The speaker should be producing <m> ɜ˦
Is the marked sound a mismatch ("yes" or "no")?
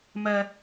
no